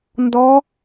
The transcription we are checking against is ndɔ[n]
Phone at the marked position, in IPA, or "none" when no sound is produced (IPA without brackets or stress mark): none